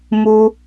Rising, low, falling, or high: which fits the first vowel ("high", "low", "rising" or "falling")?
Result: high